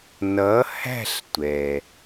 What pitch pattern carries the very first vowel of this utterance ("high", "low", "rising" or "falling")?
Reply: rising